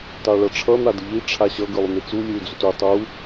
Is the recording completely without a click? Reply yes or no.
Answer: yes